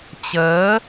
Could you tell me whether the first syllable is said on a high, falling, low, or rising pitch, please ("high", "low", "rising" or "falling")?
rising